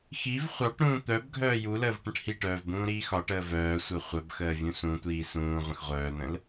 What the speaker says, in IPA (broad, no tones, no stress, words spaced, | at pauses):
xiv χʷɑʈ ɾũːt̪œbɡʱœː juləːv ʈə̃ʈhiʈœːv bũːɾiːxɒʈəː vœːsʷœ χʷœbxəː vʲũsũtʷiː sũː ʁʷə̃xʁʷœːn̪ə̃l